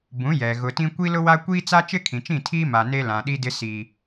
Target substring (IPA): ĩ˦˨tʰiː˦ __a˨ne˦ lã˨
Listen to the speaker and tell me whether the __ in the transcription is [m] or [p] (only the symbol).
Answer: m